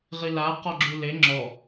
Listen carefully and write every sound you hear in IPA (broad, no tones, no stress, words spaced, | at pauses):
ʁila qɔɡ͡ǁule ŋ͡ǁɔ